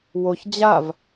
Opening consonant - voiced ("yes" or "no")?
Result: yes